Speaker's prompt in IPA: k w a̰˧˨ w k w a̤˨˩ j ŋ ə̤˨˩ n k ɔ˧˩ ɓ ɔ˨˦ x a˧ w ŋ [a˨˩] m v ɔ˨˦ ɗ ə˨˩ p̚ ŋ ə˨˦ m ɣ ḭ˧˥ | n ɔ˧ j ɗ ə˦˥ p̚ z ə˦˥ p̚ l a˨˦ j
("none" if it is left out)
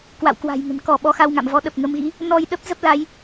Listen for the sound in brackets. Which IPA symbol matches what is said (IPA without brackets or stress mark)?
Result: a̰˧˨